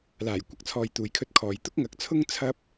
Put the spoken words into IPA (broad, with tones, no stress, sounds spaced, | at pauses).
l aː˨˩ j kʷ ɐ˧ k̚ t͡sʰ ɔː˨ j t̪ uː˨ j kʰ ɵ˧ t̚ kʰ ɔː˨ j t̪ ʊ˥ k̚ ŋ ɐ˨˥ k̚ t͡sʰ ʊ˥ ŋ t͡sʰ ɐ˥ p̚